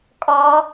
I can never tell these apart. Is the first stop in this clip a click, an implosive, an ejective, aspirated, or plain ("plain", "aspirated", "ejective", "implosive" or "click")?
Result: ejective